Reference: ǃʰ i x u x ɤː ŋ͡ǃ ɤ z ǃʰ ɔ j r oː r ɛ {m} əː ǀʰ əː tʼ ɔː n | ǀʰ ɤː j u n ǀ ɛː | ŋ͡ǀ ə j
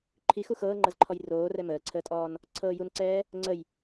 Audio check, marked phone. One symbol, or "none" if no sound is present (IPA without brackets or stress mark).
m